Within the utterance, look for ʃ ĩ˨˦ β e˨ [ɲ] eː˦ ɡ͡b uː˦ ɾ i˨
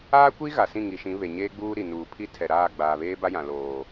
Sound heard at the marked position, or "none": ɲ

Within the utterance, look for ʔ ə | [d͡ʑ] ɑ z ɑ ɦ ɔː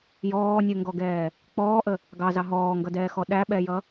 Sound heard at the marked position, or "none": ɡ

